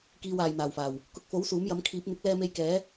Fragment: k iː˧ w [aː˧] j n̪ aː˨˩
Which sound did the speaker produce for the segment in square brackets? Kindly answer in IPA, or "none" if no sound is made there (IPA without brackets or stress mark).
aː˨